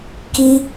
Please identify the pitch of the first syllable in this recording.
high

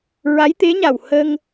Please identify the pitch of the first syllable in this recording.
rising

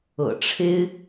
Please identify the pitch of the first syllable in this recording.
low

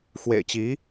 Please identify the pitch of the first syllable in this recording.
low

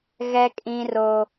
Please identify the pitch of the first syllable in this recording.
high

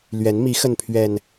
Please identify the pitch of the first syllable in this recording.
rising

